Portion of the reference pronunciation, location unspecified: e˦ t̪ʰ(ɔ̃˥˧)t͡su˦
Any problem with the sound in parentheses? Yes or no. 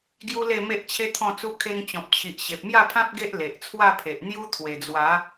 no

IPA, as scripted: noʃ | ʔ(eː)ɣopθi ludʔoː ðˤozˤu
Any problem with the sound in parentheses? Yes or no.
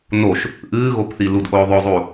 yes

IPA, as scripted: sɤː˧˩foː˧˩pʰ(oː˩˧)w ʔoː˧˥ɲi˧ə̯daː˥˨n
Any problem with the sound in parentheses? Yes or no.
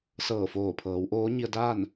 yes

